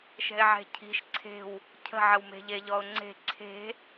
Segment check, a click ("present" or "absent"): present